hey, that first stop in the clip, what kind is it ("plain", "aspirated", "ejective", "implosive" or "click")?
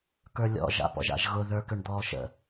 plain